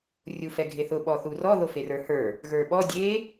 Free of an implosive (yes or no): no